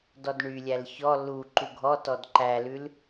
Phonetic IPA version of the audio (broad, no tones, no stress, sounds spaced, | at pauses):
d ɔ d ɳ y lʲ æ l ç ɔ l u ǃ u ɡʱ ɔ t ɔ d ǃ æ l ʉ l